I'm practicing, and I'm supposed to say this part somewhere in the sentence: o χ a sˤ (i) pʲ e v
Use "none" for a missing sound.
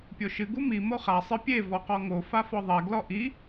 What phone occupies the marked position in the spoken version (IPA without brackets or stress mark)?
ɨ